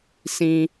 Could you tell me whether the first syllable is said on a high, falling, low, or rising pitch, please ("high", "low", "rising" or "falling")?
low